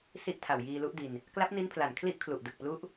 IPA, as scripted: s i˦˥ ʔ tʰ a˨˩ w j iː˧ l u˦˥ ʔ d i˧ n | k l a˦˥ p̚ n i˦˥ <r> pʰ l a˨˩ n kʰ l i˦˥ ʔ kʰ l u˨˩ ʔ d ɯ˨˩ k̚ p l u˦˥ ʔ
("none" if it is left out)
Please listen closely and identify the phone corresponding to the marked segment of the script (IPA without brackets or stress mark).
n